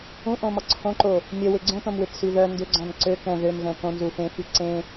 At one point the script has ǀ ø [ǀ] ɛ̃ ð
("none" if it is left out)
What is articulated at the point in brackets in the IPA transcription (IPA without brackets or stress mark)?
k